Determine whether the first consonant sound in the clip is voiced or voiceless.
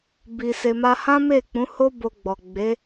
voiced